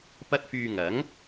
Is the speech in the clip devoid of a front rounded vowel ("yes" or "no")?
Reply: no